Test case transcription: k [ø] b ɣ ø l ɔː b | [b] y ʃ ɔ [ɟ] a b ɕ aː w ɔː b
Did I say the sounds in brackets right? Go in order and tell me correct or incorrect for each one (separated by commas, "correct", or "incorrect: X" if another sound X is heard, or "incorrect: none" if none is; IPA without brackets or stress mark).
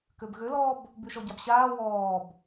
correct, correct, correct